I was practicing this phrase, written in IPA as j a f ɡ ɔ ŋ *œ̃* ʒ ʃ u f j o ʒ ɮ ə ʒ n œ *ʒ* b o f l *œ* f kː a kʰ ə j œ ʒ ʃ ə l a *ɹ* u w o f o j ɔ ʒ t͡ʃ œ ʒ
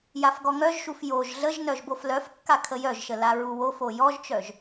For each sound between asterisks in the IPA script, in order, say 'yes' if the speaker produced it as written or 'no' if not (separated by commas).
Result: no, yes, yes, yes